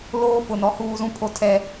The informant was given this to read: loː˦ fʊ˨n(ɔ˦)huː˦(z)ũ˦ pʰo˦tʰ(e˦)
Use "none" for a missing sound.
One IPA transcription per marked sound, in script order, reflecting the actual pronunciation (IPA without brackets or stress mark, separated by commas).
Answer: ɔ˦, z, ɛ˦